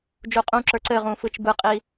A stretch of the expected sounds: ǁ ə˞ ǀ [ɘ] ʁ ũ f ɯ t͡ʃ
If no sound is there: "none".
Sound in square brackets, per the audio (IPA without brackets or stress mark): ɘ